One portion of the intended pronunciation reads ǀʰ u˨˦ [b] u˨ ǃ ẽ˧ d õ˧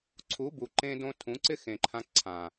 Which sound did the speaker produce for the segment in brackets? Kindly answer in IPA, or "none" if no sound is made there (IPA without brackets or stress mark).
b